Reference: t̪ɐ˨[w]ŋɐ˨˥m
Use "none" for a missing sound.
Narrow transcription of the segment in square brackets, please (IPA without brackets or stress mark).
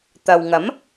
w